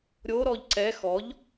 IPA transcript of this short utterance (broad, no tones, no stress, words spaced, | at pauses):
ɾʲoɾɔʎ ǀɛ xɔʎ